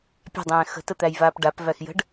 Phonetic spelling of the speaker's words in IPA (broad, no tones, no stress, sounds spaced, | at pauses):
pʲ a̤ dˤ ɛ̃ː x ə̤ t ə t̪ æ j v aː p ɖ a p v æ x j ə̤ ɖ